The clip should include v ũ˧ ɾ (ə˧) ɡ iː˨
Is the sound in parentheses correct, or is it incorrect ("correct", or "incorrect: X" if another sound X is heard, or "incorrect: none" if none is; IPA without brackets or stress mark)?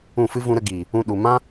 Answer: correct